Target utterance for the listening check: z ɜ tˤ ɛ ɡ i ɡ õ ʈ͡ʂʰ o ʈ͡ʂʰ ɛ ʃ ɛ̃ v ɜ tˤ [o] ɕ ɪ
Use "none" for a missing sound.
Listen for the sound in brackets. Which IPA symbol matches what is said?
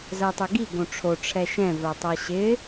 ɤ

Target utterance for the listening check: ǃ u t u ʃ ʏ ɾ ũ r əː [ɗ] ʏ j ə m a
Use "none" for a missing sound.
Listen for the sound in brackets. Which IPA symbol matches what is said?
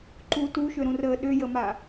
ɗ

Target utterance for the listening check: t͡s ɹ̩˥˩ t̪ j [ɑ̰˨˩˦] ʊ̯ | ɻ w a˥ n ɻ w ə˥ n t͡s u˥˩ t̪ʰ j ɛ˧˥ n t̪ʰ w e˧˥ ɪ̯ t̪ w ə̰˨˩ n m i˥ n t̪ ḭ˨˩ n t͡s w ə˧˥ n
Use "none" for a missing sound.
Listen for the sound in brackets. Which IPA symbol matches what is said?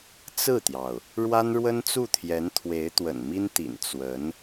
ɑ˩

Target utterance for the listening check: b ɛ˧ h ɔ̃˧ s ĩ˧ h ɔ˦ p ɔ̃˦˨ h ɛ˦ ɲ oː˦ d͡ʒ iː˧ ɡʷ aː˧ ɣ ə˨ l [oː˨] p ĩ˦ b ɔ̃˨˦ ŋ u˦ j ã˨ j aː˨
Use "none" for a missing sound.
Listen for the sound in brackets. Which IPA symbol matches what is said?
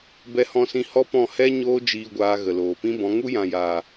oː˨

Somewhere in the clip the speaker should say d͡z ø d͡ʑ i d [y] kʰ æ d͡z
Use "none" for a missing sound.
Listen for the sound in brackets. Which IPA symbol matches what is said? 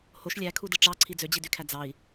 y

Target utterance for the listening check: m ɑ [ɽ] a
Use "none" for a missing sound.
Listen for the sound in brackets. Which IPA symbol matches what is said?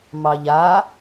ʎ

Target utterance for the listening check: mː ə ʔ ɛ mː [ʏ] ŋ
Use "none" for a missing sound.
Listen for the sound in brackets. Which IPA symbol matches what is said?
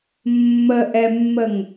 ə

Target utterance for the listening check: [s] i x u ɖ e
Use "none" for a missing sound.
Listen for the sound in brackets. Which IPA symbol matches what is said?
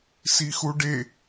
s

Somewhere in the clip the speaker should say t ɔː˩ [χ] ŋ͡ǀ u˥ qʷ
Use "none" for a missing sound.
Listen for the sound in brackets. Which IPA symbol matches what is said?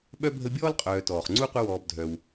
χ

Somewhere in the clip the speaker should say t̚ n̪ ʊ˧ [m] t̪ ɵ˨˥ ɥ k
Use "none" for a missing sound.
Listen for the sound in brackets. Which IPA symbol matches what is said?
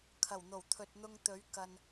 ŋ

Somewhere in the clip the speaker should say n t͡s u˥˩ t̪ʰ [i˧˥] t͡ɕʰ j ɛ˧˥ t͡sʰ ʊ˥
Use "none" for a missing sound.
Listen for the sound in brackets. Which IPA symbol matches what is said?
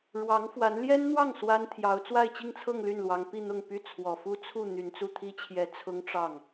i˥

